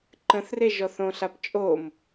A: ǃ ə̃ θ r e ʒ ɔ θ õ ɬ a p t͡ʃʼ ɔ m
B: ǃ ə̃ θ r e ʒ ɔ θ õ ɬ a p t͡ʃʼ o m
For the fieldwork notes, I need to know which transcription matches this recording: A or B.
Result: B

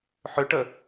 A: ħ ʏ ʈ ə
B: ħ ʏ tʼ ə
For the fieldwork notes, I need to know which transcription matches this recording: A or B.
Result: A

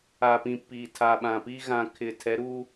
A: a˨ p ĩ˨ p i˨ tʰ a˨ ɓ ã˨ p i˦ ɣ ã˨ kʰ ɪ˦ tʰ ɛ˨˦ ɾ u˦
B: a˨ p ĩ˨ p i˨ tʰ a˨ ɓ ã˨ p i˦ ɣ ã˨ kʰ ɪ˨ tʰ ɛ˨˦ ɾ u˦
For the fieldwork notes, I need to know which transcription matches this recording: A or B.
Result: B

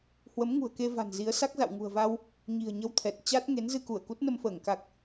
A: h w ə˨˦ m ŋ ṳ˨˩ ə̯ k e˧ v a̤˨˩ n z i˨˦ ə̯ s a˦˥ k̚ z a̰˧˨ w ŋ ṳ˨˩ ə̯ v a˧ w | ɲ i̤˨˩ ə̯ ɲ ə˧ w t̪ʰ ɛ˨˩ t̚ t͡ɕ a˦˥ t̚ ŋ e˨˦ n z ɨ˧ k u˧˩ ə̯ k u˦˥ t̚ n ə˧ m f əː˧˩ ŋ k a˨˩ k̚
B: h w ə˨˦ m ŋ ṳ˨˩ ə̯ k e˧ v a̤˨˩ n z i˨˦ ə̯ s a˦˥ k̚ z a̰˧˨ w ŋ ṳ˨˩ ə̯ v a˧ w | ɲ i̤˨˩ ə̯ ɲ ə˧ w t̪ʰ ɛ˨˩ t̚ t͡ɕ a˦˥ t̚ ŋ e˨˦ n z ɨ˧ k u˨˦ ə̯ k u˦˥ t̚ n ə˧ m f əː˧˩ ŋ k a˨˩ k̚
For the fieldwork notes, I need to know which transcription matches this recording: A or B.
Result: A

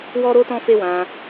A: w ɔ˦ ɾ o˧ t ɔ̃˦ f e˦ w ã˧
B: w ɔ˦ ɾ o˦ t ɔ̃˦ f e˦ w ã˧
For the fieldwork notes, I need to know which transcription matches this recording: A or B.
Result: B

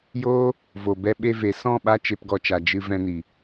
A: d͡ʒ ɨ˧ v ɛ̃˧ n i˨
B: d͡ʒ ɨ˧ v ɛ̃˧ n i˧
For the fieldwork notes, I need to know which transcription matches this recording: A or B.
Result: A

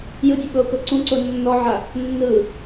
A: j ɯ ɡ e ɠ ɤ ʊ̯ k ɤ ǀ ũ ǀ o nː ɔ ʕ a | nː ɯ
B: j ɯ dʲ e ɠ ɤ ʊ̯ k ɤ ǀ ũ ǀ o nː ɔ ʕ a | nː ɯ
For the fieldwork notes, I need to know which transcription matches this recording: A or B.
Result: B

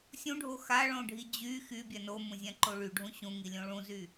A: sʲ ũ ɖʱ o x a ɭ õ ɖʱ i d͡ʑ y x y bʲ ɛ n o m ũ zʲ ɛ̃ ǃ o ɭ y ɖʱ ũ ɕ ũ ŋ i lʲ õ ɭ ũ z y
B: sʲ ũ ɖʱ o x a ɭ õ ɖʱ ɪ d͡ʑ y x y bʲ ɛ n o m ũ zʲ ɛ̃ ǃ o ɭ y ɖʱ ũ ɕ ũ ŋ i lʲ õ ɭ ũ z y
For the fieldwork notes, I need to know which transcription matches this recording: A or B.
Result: A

